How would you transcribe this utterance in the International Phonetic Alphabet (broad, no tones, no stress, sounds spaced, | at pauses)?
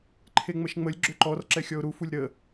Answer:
ǃʰ e ŋ͡m ə ʃ ŋ͡m ə lʲ ɡ͡ǁ ʏ ǃ ɔ r ǁ ɛ xʲ ɔ ʊ̯ ɾ u f u lʲ ɾ ə